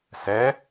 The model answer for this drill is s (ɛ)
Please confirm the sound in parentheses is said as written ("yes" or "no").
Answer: yes